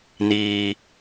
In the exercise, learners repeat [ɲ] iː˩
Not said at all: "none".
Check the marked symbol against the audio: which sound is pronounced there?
n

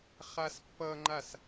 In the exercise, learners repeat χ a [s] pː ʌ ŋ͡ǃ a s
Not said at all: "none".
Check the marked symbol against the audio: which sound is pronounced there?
s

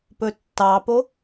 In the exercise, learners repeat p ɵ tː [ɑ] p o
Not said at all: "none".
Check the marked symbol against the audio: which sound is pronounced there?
ɑ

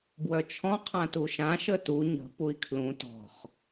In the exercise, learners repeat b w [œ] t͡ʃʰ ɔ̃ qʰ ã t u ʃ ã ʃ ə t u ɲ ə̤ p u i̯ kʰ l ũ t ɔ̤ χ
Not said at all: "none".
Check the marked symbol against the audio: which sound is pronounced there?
œ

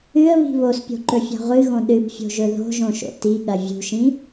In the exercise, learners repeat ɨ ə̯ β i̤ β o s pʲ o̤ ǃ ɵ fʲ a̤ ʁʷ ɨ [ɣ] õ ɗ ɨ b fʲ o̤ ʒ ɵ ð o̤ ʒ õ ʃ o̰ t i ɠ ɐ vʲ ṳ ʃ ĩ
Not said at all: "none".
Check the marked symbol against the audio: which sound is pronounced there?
ɣ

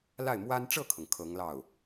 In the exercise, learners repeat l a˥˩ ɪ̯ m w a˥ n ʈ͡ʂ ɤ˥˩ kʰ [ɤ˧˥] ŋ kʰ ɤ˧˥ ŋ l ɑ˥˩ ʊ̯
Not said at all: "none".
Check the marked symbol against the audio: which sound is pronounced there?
ɤ˩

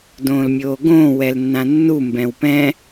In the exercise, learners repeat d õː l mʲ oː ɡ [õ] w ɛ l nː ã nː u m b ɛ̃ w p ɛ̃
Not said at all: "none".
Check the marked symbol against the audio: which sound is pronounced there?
õː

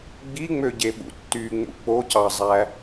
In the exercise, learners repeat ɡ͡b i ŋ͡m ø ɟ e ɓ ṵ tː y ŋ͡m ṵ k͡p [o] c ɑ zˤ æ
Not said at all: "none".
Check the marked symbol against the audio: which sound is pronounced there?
o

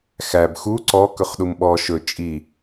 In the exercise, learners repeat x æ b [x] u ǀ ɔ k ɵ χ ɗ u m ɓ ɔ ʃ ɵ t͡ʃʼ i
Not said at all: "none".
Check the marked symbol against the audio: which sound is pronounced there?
x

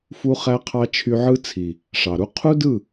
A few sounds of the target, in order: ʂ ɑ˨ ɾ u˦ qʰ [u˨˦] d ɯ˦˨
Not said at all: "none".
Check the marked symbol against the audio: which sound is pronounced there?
u˦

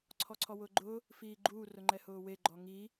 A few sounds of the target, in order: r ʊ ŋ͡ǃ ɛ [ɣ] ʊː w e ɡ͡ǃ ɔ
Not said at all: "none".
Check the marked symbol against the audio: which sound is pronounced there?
h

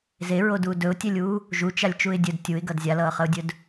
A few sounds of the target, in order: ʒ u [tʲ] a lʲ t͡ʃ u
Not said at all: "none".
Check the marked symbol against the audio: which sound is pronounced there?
t͡ʃ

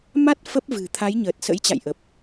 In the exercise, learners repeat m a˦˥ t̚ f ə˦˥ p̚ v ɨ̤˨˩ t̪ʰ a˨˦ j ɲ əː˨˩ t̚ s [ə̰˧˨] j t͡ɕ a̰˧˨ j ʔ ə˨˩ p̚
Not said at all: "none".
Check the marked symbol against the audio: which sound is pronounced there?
ə̰˧˥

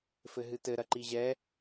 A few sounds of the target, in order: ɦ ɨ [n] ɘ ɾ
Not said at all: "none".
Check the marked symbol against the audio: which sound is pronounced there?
t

